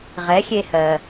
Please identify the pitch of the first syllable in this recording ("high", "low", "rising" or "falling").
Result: rising